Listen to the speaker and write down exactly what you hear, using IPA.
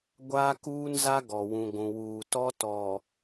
ɡʷaː˦kuː˦nza˦ ɡɔ˨ wũ˨ɡʷũ˨wuː˨tɔ˦ tɔ˨

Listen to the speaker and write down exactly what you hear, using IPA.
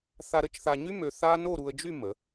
θa˧ɾə˩˧t͡ʃθa˧ɲy˥ mø˧θa˥ no˥˧ɾu˧ə̯d͡ʒy˥˧ mə˩˧

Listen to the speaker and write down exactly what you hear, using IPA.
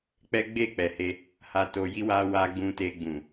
k͡pɛ˦ɡ͡be˦˨k͡pɛ˨he˧ | ha˧ to˧ji˦wa˦ wa˧ ɡ͡bũ˧te˧ɡ͡bũ˨

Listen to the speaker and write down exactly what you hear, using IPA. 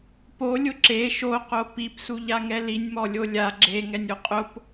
polʲʊ ǁe ʃoqo pipsuʎa ŋɛlinʲmɔ lʲolʲa ɡ͡ǁe ŋɛnʲoqʼʊp

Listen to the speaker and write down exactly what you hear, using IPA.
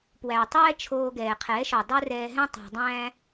pwæ˨tˤɛː˦t͡ʃʰoː˧ ɡɛː˨qʰɛː˨˦ʃɔ˨ dˤo˦rɛː˧ɦɛ̃˦ tˤæ̤˧dˤæ̃ː˦

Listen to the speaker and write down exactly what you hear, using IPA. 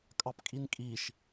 kʼɑpkʼinkʼiʃ

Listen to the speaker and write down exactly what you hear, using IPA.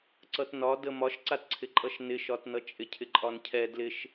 ǀʌtnɒ dəmɒʃǀatǀʰɪ ǃʼʌʃnɪʃɒtnʌ t͡ʃʼɪcʰɪǃʼɒncʰɛ dlɪʃ

